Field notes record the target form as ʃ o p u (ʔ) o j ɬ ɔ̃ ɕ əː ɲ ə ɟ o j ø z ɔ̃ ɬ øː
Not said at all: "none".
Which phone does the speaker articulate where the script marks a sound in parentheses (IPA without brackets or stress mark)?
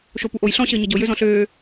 ʔ